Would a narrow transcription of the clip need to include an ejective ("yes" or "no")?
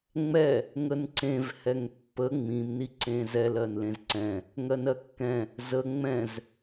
no